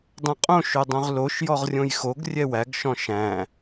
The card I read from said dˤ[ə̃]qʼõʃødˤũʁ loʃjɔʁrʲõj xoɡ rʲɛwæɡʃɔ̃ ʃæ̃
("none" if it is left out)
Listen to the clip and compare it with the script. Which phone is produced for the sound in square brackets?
ɛ̃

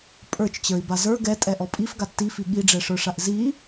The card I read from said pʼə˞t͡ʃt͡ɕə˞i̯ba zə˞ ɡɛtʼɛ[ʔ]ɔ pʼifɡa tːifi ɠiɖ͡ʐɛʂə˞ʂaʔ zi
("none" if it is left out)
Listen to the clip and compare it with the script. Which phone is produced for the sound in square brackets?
ʔ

